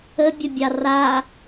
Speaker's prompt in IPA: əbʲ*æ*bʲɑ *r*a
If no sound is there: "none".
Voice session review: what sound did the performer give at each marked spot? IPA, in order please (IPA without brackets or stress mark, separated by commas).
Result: ə, r